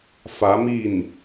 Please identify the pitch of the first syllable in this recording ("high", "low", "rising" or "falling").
rising